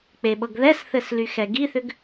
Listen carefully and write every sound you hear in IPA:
k͡peɓɤɡðɛsθɘs lyxɛɡiθʏɡ

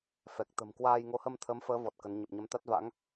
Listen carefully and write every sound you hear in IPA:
fɛ˨˩k̚t̪ə̤˨˩m kwaː˧j ŋo˨˦hə˧mt̪ʰəː˨˦mfəː˨˦ vɔ˨˩t̚kə˨˦n ɲə˨˩p̚ɲə˨˦mt̪a˦˥t̚va̰˧˥ŋ

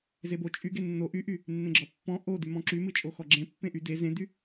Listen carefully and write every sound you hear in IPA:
zebo t͡ʃʼyɡe nːo ʔyʔy | nːẽɡ͡ǁɔpːɔ̃ ʔo dymɔ̃ǁymɨ t͡ʃʼoxɔɡ͡ǁẽ pːẽʔy de zẽdy

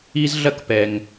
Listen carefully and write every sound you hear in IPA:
i˥z ɮɐ˥kpɛ˧ŋ

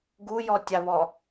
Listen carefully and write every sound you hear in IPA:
ɡujɔtʲaβɔ

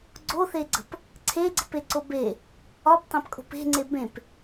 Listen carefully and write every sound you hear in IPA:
ɡ͡ǀoθeɡ͡ǀə̤p | ǀʰeɡ͡ǀə̤peǀo be | ɒptˤẽpkʼo̤p e̤ŋ͡ǀe bẽp

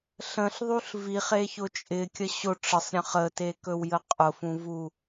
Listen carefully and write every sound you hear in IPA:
ɬə̃ɬðˤuɬ viχeçʊ t͡ʃʼɪkʲə ɕʊ ʈ͡ʂəsˤɾʲə̃ χətekɵwjə qʼʊfũvu

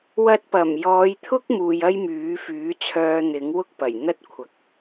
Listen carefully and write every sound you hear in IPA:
wɐ˧t̚pɐ˨˩mjɔː˨˧jt̪ʰʊ˥k̚ muː˧jɐ˥jmyː˨˥fyː˨˥ t͡sʰœː˧n̪ɪ˨˥ŋwʊ˥k̚pɐ˨˩j n̪ɐ˥t̚kʷʰɐ˨k̚

